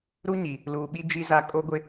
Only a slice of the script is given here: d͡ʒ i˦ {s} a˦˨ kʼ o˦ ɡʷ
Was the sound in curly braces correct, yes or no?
no